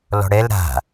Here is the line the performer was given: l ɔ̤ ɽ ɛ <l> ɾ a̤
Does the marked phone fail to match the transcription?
no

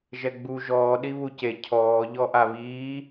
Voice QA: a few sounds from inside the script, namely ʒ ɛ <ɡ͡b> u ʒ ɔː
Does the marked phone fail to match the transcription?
no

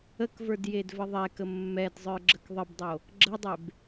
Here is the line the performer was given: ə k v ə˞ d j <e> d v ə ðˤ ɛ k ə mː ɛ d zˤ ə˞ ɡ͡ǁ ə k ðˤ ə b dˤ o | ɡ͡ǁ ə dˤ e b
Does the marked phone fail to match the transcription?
no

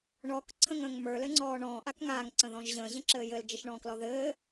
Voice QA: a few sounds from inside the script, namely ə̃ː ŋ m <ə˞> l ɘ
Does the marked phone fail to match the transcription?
no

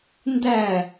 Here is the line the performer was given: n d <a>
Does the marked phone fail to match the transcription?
yes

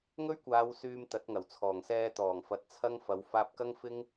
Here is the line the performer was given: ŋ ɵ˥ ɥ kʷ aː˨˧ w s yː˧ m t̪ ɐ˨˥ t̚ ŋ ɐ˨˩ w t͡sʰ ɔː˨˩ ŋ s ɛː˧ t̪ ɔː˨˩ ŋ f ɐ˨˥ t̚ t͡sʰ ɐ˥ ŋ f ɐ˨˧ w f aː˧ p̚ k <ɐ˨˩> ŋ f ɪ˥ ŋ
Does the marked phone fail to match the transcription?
yes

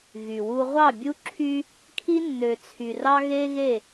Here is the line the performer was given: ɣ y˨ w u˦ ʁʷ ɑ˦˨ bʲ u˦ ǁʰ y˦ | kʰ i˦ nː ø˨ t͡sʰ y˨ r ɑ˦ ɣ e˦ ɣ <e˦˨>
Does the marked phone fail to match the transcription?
no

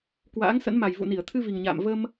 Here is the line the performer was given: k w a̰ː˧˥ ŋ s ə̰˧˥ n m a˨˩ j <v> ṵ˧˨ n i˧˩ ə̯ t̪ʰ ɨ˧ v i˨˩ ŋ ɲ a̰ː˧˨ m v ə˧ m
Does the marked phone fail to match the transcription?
no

